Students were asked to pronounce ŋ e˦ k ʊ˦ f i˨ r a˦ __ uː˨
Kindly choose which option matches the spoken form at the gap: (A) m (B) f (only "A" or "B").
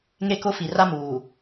A